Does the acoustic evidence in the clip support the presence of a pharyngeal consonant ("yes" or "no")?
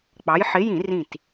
yes